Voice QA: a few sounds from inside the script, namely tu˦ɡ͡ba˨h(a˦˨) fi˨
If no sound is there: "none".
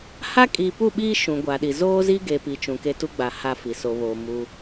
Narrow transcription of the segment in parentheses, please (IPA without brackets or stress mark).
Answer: a˦˨